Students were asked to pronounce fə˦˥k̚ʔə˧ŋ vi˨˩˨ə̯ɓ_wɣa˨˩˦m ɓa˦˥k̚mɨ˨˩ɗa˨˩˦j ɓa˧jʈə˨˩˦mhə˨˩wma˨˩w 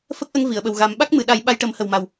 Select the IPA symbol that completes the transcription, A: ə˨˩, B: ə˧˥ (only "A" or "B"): A